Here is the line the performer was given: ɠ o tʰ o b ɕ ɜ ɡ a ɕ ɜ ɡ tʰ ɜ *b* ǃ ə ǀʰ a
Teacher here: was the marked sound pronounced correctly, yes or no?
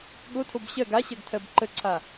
yes